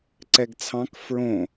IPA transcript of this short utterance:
ǀ ɛ ɡ t͡sʰ ɑ̃ k f ɹ õ

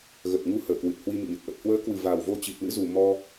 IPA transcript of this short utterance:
ɣ ə˨˩ t̚ ŋ u˧ h əː˧˩ k w ɨ˨˩ t̚ h w i˧ m ḭ˧˨ ɲ ə˨˩ t̚ ʔ ə˨˩ t̚ h w əː˨˦ k w ɨ˨˩ v a˨˩ w v o˧ t͡ɕ i˨˩ t̚ l ɨ̰˧˥ z u˨˩ m ɔ˧

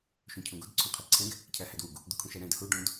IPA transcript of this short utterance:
ʃ õ cʰ õ ɡ o d ǀʰ õ qʰ ɛ ǀʰ ɛ̃ ɡ | cʰ æ h æ d w u ɡ | d̪ u kʰ ũ ʃ æ ɾ æ̃ d h u ɖ õ d

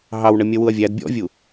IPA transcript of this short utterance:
ɦ ɑ w ɳ ə mʲ ʌ w u ɐ̯ vʲ æ d bʲ ɔ̰ vʲ u

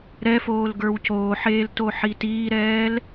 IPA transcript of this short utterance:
ɾ ɛ f oː l ɡ ə˞ w c oː ħ eː l t o ħ i t iː ɾ ɛː l

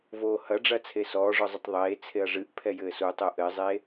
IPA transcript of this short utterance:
v oː h ɐ ɖ͡ʐ ɐ t͡sʰ e s ɔː ʐ ɔ zˤ ɘ tˤ ðˤ eː t͡sʰ e ɐ̯ ʐ ɨ ʔ pʰ ɛ j ɘː s u tˤ o ʔ ɘ zˤ eː

